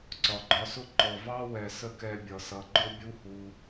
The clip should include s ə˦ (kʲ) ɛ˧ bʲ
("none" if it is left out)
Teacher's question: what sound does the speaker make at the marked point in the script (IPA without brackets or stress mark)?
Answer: k